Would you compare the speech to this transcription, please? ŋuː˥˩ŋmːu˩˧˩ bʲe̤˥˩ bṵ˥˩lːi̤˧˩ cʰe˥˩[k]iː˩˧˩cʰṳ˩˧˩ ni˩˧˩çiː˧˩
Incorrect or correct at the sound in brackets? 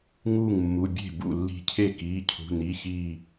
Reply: correct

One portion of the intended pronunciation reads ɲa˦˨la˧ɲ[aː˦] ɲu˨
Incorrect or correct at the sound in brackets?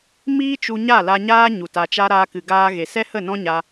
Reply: correct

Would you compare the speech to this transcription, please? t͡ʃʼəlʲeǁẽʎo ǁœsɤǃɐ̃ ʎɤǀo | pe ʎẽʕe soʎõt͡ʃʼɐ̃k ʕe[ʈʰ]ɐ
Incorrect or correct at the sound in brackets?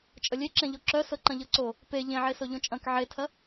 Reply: incorrect: tʰ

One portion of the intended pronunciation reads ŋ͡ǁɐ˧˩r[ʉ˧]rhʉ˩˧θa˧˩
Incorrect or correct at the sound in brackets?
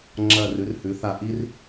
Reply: incorrect: ʉ˩˧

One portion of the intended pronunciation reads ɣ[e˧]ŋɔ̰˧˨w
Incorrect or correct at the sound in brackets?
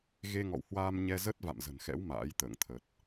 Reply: correct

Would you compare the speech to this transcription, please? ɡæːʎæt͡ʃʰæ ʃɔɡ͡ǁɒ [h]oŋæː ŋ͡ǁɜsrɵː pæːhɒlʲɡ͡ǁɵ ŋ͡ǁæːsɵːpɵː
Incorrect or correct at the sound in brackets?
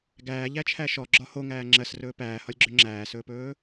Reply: correct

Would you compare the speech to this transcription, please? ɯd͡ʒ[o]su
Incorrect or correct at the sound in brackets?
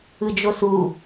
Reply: correct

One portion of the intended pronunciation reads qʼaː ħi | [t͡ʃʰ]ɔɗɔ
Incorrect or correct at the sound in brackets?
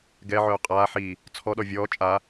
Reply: incorrect: t͡sʰ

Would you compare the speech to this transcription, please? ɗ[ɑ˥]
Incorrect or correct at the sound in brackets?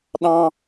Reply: incorrect: ɑ̃˥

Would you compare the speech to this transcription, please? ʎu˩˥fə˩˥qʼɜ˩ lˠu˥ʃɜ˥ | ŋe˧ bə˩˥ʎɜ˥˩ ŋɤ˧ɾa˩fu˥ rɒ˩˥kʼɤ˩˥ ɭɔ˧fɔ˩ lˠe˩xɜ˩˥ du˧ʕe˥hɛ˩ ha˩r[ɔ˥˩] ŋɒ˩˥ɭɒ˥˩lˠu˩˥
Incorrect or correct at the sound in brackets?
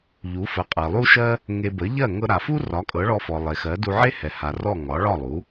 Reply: correct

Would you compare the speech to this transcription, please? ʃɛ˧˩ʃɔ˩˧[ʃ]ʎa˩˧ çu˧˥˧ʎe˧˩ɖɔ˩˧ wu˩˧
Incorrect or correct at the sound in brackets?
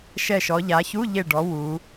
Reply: incorrect: none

